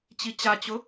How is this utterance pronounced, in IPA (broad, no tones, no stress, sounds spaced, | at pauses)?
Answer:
t͡ɕ i t͡ɕ a t͡ɕ ʊ